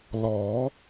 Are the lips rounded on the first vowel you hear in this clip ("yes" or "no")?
yes